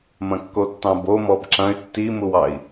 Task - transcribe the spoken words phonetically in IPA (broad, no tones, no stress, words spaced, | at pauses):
mɐ̃kːotːɑ̃bo mɔbǁɐ̃y̯ tːimuwɑi̯